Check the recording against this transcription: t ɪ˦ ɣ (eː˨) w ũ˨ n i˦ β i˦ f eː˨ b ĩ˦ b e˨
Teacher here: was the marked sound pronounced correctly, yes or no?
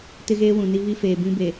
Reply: no